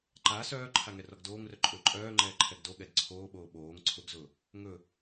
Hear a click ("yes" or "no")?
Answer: yes